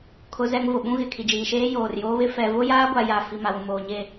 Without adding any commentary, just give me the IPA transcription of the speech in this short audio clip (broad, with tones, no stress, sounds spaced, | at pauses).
kʰ ʊ˦ z ɛ˦ ŋ v ʊ˨ ɓ ũ˦ ɣ ɪ˨ kʰ i˨ d͡ʒ iː˨ ʃ eː˦ j oː˨ r j oː˦ β ɪ˦ f ɛ˨ v ʊ˦ j aː˦ ɡʷ a˨ j a˨ f i˨ m a˨ w ũ˨ m oː˨ ɲ e˦˨